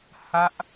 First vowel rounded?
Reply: no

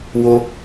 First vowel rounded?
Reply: yes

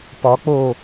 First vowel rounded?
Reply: yes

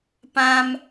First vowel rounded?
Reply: no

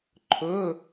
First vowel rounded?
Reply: yes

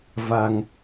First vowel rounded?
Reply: no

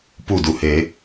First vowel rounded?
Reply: yes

